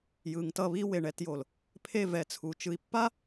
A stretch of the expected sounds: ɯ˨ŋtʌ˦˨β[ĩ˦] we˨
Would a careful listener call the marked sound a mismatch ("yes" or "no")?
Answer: yes